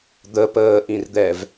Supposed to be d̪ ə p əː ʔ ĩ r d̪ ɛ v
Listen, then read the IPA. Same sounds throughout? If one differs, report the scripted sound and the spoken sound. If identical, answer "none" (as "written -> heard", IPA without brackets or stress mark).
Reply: none